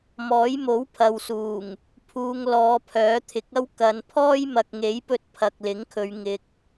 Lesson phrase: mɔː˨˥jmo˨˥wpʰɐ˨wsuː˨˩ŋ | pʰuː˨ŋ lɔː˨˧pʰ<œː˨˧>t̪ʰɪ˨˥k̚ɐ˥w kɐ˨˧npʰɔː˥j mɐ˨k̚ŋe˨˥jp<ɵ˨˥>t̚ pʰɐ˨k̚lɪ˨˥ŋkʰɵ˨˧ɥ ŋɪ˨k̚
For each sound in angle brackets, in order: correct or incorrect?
incorrect, incorrect

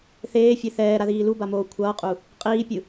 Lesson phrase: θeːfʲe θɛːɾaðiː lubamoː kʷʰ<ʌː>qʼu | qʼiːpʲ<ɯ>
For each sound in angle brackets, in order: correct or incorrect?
correct, correct

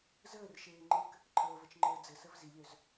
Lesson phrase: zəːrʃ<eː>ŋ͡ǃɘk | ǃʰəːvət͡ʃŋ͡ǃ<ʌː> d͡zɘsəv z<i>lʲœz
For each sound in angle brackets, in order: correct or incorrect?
correct, incorrect, correct

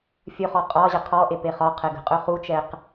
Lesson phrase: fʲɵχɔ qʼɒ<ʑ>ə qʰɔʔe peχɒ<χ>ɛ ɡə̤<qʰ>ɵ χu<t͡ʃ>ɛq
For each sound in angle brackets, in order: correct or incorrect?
correct, incorrect, incorrect, correct

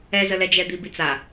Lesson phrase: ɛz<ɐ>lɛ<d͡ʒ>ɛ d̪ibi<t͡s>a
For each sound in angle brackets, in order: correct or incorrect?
incorrect, correct, correct

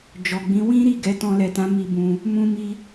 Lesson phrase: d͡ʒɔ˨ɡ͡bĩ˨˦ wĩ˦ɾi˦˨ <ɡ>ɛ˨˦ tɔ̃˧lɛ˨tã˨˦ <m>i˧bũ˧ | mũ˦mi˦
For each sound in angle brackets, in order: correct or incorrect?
correct, correct

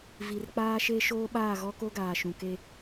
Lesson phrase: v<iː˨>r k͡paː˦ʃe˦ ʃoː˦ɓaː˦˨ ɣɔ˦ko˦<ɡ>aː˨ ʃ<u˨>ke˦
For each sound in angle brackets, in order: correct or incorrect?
incorrect, correct, incorrect

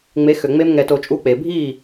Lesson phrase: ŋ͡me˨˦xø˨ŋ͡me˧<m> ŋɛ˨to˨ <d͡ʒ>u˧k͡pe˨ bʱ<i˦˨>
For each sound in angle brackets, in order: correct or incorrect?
correct, incorrect, correct

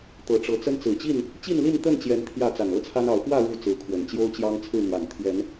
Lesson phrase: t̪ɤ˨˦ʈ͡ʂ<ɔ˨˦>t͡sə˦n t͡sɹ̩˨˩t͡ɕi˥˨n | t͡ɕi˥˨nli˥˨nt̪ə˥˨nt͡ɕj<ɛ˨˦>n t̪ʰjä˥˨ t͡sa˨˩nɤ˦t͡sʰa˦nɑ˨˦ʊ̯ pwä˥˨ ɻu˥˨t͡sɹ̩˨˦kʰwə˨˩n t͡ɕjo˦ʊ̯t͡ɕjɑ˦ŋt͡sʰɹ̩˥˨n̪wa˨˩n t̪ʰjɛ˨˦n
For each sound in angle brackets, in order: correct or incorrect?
incorrect, correct

